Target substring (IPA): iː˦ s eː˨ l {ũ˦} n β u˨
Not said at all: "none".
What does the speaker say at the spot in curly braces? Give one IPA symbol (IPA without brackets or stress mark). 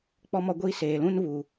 ũ˦